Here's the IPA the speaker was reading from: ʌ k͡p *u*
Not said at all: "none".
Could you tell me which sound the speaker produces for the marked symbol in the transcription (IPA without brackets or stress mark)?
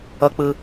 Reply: ɯ